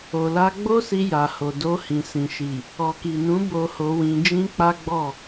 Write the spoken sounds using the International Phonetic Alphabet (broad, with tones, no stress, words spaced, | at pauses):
o˨la˧ ɡ͡bo˦si˧ ja˨ho˨do˧ hĩ˨sĩ˨ʃi˨ | ɔ˨ki˨nũ˨˦ bo˧ho˧wĩ˧ d͡ʒĩ˦k͡pa˦ɡ͡bɔ˦˨